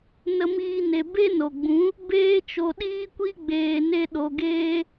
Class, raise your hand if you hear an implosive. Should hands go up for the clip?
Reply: yes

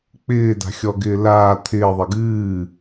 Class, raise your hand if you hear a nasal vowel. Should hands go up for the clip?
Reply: no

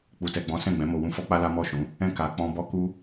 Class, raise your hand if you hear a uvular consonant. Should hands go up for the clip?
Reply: no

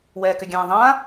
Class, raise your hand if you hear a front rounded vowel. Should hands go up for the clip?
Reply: yes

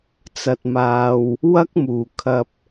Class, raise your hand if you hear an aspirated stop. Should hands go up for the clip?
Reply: yes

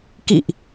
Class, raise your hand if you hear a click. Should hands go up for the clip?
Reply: no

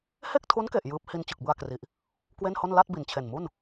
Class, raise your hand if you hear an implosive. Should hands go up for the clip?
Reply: no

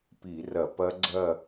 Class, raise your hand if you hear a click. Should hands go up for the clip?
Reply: yes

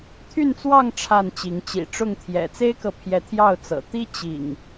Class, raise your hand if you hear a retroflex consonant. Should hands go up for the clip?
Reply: yes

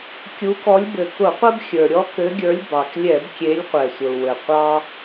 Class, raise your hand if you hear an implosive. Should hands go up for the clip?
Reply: no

